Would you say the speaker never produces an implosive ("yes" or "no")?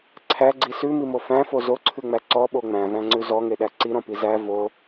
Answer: no